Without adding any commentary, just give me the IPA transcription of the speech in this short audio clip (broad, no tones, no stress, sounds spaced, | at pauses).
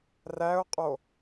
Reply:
r æ ʊ̯ qʼ o